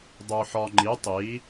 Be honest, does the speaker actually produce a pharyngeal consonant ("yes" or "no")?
yes